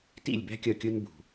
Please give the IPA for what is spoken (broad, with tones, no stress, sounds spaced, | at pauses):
t ḭ˥˨ lʲ b æ̤˥ kʲ ʌ˥˨ kʲ ʊ˥ n b ṳ˨˩